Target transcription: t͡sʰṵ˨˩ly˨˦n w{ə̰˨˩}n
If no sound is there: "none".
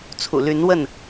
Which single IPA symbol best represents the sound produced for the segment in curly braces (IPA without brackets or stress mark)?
ə˥˨